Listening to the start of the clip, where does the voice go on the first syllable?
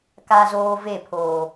high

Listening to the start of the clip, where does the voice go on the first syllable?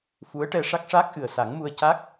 rising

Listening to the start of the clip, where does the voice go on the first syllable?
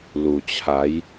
low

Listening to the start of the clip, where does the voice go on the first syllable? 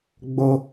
low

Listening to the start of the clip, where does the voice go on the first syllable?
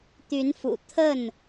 rising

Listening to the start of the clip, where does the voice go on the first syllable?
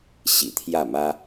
low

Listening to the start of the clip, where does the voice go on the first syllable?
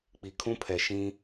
low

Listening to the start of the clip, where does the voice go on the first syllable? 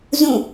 falling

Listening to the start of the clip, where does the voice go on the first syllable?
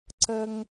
high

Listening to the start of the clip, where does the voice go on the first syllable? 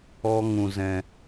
high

